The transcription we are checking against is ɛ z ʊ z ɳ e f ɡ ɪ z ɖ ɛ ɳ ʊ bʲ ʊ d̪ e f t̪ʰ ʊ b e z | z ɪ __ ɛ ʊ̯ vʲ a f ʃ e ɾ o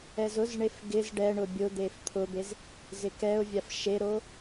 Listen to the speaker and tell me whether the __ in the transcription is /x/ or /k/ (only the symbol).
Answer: k